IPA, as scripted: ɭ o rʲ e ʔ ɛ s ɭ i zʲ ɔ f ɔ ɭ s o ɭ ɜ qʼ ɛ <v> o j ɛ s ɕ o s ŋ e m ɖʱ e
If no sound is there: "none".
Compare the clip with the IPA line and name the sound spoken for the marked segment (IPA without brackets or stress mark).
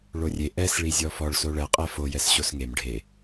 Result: f